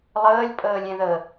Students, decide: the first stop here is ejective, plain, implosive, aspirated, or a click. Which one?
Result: ejective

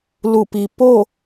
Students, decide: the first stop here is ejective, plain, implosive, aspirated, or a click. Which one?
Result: plain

